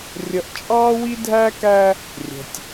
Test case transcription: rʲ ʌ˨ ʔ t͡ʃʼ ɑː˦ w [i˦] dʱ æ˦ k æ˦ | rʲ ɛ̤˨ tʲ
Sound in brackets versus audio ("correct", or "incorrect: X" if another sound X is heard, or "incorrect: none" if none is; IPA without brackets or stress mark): correct